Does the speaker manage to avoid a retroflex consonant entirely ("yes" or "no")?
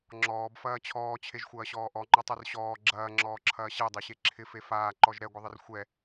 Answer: yes